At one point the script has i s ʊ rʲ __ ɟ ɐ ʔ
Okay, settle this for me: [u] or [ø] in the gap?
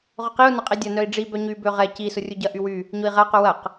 u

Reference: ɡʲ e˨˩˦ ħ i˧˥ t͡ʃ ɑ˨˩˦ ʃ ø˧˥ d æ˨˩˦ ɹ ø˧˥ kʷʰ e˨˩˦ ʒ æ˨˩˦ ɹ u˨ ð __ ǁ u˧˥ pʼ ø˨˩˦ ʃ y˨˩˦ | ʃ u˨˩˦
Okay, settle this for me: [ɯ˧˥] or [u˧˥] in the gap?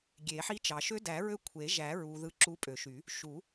ɯ˧˥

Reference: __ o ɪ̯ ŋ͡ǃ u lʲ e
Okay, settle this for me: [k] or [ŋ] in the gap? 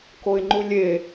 k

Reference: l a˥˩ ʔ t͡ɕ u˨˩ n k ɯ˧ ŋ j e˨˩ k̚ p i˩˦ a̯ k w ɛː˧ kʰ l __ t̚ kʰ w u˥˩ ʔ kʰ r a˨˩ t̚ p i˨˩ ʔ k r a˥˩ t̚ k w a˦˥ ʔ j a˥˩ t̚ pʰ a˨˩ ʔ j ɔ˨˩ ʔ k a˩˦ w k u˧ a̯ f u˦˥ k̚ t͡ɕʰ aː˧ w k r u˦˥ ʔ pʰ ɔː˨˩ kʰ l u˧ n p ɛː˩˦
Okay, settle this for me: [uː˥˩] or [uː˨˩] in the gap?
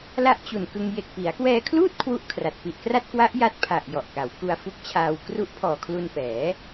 uː˥˩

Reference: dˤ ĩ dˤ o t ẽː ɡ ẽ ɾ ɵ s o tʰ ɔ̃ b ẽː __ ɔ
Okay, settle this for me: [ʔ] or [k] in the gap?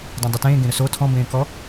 k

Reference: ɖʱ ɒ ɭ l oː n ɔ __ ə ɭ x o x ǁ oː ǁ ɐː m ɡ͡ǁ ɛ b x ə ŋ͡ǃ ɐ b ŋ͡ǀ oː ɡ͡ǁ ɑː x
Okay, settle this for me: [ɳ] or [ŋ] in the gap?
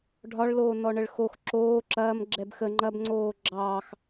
ɳ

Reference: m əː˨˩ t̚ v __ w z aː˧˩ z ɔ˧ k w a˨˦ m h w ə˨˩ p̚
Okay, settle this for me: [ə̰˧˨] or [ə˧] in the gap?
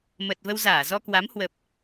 ə˧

